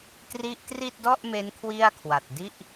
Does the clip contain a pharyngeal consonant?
no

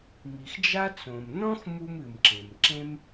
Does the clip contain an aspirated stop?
no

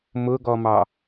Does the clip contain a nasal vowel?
no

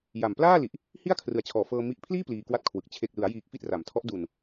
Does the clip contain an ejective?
no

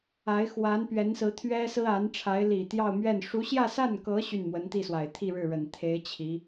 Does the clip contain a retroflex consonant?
yes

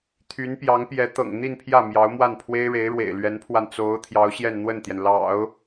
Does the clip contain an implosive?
no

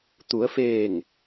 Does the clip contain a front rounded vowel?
no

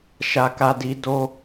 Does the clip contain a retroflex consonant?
no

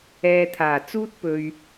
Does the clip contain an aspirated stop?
yes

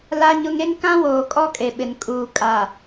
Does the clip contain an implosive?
yes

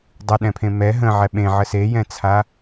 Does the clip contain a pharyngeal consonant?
yes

